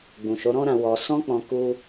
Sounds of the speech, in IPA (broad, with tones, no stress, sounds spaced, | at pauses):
ɡ͡b ũ˨ ʃ o˨˦ ɾ ɔ̃˦ ɾ ã˧ w ɔ˧ s ɔ̃˦ k͡p ɔ̃˧ k u˦